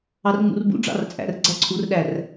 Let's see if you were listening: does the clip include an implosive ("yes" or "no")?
yes